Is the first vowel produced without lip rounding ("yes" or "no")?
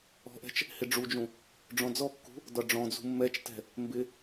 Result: no